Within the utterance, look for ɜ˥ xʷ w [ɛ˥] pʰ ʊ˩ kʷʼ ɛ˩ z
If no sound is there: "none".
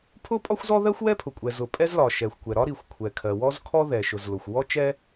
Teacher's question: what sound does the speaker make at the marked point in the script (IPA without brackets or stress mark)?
ɛ˥